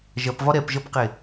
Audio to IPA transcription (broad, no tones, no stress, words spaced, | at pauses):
ʒɐpvɒ ɾɛpʒɐpqe